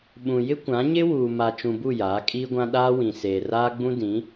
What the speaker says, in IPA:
ɓ ũ˨ j ɪ˦ kʷ ã˨˦ ɲ ɪ˦ w uː˨ m a˨ t͡ʃ ũ˨ b u˦˨ j aː˨˦ kʼ iː˦ ɡʷ ã˦ ɗ aː˦ w ĩ˨ s eː˨ r aː˦ ɡ͡b ũ˦ d ĩ˨˦

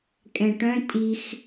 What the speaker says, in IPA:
kʼ ɛ̃ ʈ œ̃ tʼ i x

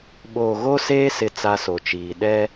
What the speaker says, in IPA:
ɓ oː˨ ɣ o˦ s eː˦ s ɪ˦ t͡s a˦ s o˨ t͡ʃ iː˨ ɗ ɛ˦

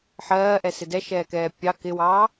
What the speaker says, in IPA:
ħ ɜː ʔ ɛ s ɪ d ɛ ʃ ɛː k ɛː pʲ ɑ k ɪ w ɑː

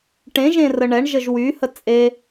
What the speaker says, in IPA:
ʈ ẽ ʒ ẽ r ə ɳ ɛ ɳ ʒ ə ʒ w y h ə t͡sʼ e

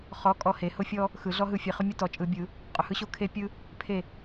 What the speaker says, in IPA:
χ ɔ˧˥ kʼ ɔ˧˥ h e˩˥ h ʊ˥ fʲ ɔ˥ | x ɯ˨˩˦ ɮ ɔ˥ ɦ ɯ˧˥ fʲ e˩˥ χ ʊ˥ mʲ ʊ˥ t ɔ˨ t͡ʃʼ ɯ˨˩˦ bʲ ɯ˨˩˦ | qʼ ʊ˨ h ɯ˥ ɕ o˥ kʰ e˥ pʲ ɯ˥ | pʰ e˥˨

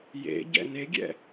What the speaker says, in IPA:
j ḛ ɟ ɛ̰ n e ɡʲ ɛ̰

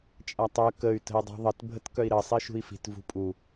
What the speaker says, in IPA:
t͡ʃʼ a tˤ œ k ə y̯ t ə̤ i̯ dˤ i̤ ðˤ ə t bʱ ə t k œ i̯ ɾ ə sˤ i ʃ ṳ i̯ f i̤ t v ṳ pʼ u

